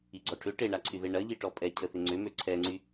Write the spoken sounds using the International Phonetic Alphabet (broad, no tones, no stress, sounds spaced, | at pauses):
i ɡ͡ǀ ɔ ʈʰ ʏ ʈ e ɳ a ǀʰ y ð e ɳ ɐ ʎ i ʈ ɔ pʼ ɛ cʰ ə θ ɪ ŋ͡ǀ ʏ m ø ǀʰ ɛ ŋ͡ǀ y